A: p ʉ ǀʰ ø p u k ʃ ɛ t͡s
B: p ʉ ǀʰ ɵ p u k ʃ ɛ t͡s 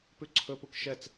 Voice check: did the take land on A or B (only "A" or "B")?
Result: B